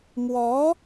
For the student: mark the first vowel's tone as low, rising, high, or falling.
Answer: rising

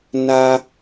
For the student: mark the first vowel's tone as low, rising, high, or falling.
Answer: high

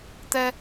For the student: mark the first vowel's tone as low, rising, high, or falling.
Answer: high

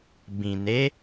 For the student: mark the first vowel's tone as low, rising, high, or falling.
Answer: low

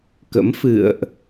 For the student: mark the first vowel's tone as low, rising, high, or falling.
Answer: rising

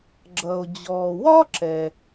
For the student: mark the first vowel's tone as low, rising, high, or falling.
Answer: low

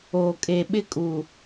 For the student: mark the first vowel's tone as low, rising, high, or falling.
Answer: low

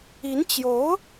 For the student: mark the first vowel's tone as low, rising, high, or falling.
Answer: rising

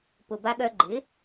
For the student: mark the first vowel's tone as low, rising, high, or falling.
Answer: low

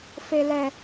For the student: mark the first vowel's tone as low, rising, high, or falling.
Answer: high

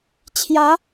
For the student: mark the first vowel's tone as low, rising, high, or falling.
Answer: rising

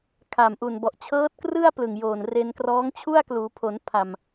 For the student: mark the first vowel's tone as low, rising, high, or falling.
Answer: low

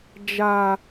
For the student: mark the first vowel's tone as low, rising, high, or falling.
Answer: low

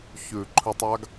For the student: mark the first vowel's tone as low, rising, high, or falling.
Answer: low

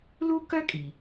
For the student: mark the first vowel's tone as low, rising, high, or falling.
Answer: high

